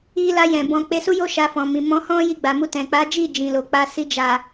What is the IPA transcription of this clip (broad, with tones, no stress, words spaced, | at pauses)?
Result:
i˧la˧jɛ̃˨ bɔ̃˧ k͡pe˧su˦jo˦ ʃa˧fɔ̃˨mĩ˨ mɔ̃˨˦hɔ̃˦ ji˧ɡ͡ba˨mu˧tɛ̃˨ k͡pa˨˦d͡ʒi˦˨ d͡ʒĩ˨lo˨ k͡pa˧ si˧d͡ʒa˨